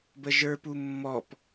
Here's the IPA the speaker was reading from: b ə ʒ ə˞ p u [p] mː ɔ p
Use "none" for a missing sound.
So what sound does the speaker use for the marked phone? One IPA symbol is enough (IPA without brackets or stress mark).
none